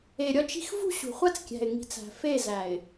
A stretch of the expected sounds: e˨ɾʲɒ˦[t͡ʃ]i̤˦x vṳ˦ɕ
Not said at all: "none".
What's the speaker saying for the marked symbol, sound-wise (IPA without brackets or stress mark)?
t͡ʃ